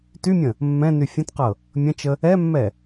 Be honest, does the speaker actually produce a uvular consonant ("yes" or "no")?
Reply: yes